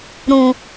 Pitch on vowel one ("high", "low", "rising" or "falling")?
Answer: low